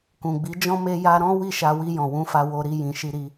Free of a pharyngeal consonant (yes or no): yes